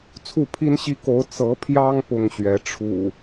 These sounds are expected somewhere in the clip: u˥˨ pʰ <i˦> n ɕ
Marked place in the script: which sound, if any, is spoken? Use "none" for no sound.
i˦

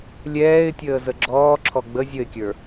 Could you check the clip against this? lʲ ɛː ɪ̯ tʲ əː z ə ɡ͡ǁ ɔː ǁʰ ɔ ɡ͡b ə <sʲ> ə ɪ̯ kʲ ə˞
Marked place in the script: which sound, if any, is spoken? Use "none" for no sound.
zʲ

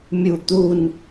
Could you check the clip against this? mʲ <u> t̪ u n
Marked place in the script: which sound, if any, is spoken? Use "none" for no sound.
u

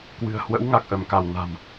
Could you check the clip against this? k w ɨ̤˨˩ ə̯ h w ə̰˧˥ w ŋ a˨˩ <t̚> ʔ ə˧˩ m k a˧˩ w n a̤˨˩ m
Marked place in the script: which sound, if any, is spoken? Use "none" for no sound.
k̚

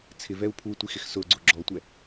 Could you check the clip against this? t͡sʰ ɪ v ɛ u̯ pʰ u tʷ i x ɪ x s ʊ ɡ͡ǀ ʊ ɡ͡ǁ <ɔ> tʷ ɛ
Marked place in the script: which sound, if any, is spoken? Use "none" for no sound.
ɔ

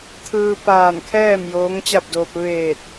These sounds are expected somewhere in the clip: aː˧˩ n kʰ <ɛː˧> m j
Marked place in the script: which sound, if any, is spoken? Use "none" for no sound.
ɛː˥˨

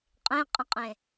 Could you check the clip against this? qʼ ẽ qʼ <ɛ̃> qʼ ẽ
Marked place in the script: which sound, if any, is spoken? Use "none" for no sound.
ə̃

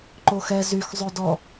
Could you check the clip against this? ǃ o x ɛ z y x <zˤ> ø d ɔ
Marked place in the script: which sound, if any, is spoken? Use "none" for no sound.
zˤ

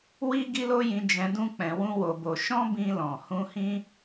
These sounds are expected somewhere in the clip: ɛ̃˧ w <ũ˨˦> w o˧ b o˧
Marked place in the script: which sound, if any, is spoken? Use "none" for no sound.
ũ˦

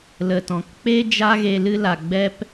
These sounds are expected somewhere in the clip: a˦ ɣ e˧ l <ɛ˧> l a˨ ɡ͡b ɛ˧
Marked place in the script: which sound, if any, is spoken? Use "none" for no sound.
ɨ˧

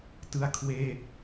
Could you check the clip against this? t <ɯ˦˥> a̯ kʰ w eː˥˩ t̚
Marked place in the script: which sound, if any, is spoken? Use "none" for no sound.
ɯ˥˩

